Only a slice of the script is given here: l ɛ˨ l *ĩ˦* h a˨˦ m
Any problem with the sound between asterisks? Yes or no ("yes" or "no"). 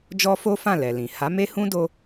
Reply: yes